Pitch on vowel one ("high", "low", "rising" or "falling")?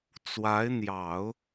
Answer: rising